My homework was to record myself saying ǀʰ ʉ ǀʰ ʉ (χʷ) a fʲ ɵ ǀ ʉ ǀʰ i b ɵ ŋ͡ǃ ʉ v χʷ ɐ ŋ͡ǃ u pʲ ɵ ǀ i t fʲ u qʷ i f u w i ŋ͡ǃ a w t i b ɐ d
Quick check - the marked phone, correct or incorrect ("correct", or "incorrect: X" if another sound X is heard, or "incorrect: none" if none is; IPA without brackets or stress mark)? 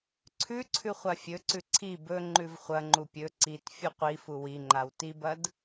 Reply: correct